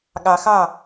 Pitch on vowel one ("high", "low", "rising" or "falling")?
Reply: low